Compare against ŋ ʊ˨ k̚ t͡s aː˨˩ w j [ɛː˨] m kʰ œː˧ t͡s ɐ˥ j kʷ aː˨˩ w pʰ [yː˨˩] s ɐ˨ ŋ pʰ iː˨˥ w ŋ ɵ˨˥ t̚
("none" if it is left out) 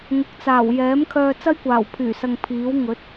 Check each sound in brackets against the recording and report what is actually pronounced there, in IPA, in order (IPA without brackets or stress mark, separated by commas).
ɛː˨˥, yː˨˩